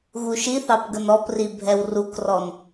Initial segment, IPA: ɣ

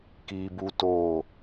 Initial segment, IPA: k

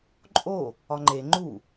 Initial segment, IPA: ǃʼ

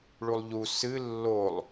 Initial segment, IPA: ɭ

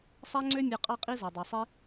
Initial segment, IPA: sˤ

